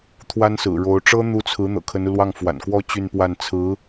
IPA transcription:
t̪ʰwa˥nsɹ̩˨˩ɻo˧˥ʊ̯ ʈ͡ʂɤ˥n̪u˧˥t͡sʰɹ̩˧˥ n̪ɤ̰˨˩kʰə˧˥nu˧lwɑ˥˩ŋ fwa̰˨˩nkwɔ˥˧ t͡ɕy˥˧npwa˥˩n t͡sʰɹ̩˧˥

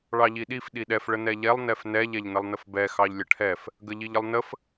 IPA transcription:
ɭɑʎiɗif ɗiɗɛf ɭənɛʎɛlˠ nɛfnɛ ʎɛʎnəlˠnəfbɛ xɑʎlʲəʈʰɛf | ɡəʎiʎəlˠnəf

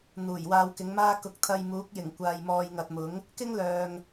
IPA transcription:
n̪uː˨˩jwaː˧wkɪ˨˥ŋmaː˥ kʊ˨˥k̚t̪ʰɐ˧jmuː˨˥k̚jɪ˨˩ŋ kʷaː˨jmɔː˨jŋɐ˨t̚mʊ˨˥ŋ | kɪ˥ŋlœː˨ŋ

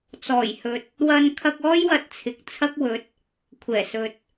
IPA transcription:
t͡sɔː˨˩jhɵ˨t̚ | wɐ˧nkʰɐ˧k̚ɔː˥j wɐ˧t̚t͡sʰɪ˨k̚t͡sʰɐ˥k̚wɵ˨˥t̚ | kʷʰɛː˨˩sɵ˨t̚

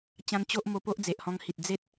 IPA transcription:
t͡ɕã˧n t͡ɕo˦ʔ mo˧ po˦ʔd͡ze˨ʔhɔ̃˧ŋhi˨t̚ d͡ze˦t̚

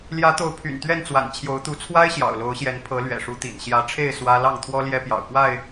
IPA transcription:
ljä˨˦t̪o˨˦ʊ̯ pʰy̰˨˩nt̪ɥɛ˥˨nt͡swa̰˨˩n t͡ɕʰjo˨˦ʊ̯t̪u˨˦ t͡sʰwa˦ɪ̯ ɕjɑ̰˨˩ʊ̯lo˨˦ʊ̯ɕjɛ˨˦n pʰɤ˨˦ lɥɛ̰˨˩ʂu˨˦t̪ḭ˨˩n ɕjä˨˦ʈ͡ʂʰe˥˨ɪ̯ swä˦ lɑ˥˨ŋt̪ʰwɔ˦ ljɛ˦pjɑ̰˨˩ʊ̯kwa˥˨ɪ̯

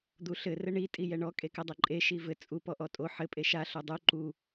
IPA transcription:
d̪uɬɘ rɘɳi tʼijɛɳɔ kʼekɘdˤɘǃʼe ʃivɘ t͡sʼu pɔʔɔtʼo ħɘ pʼeʃa ɬodˤu ǃu

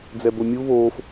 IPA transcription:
d͡zɛbomʲu βoːf

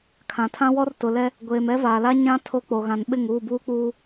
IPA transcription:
kʰã˨tʰã˦wɔ˦r tʊ˨lɛ˦ | ɡʷeː˨mɛ˦vaː˨la˦ ɲã˦ tʰo˦k͡po˨ɣã˨nɓɪ˦˨ŋ uː˦˨buː˦k͡puː˦

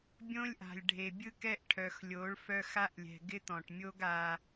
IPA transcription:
bʲõ˦lʲʔa̤˨lʲ ɖʱe˨bʲɯ˦kɛ˦ʔ ʈʰœ˨xlʲo˨˦ɭ fœ˦xa˦ʔlʲɛ̤˨ ɡɪ˦t̪ɔ̃˨ʈ mʲo˦ɡ a˦

